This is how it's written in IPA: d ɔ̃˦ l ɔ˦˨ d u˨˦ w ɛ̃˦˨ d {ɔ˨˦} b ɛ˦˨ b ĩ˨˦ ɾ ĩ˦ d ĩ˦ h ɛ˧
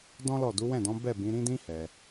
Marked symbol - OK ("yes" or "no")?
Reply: no